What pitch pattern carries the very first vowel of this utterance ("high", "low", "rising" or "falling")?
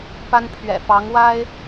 high